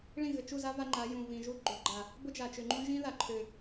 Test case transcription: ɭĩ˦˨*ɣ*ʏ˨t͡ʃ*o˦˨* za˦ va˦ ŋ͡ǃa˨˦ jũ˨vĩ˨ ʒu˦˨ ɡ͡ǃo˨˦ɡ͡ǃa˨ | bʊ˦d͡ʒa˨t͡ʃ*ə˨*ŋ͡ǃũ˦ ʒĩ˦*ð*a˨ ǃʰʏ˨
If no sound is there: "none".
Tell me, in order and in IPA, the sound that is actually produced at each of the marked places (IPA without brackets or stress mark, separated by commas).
ɣ, u˦˨, ʏ˨, ð